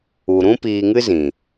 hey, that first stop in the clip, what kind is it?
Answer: plain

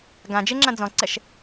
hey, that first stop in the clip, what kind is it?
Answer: plain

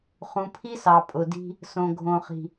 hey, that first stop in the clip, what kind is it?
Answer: aspirated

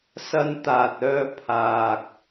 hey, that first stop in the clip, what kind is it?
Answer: plain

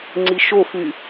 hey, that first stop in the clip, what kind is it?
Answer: click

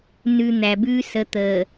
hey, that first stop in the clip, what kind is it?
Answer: plain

